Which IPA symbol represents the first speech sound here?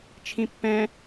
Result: t͡ʃʰ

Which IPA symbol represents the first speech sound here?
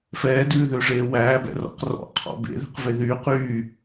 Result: f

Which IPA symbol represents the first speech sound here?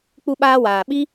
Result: k͡p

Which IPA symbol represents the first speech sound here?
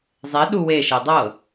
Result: zˤ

